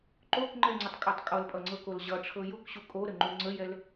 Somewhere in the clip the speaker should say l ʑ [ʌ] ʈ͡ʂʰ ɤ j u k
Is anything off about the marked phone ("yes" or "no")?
no